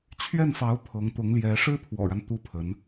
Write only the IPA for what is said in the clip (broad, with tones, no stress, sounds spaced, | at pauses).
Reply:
t͡ɕʰ ɥ ɛ˥˩ n f ɑ˧˥ ʊ̯ pʰ ɤ˧˥ ŋ t̪ ʊ˧˥ ŋ l j ɛ˧˥ ʂ ɻ̩˥ pʰ w ɔ̰˨˩ ɻ a˦ n t̪ u˥ pʰ ə˧˥ n